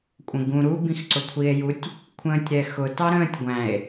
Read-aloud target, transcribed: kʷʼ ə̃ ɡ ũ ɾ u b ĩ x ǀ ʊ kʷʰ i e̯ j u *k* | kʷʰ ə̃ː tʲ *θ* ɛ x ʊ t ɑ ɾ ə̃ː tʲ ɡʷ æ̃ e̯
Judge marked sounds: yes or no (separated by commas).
no, no